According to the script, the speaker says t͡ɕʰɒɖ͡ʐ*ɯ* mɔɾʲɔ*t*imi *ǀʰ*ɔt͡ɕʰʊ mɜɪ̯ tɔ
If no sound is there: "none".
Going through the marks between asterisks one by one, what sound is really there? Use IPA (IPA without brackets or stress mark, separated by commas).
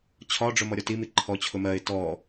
ʊ, t, ǃʰ